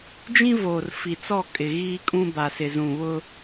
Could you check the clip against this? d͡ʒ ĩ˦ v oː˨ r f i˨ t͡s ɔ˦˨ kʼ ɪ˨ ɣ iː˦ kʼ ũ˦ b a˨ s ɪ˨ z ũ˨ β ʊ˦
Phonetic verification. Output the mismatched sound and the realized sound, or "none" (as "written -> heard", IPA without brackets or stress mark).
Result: none